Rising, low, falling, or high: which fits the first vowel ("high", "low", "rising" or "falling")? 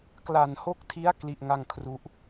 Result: low